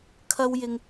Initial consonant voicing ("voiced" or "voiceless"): voiceless